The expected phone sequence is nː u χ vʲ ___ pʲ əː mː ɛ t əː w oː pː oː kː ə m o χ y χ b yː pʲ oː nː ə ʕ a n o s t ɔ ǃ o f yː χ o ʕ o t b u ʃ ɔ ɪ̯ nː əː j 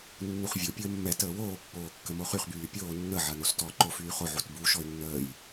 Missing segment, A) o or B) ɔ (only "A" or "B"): A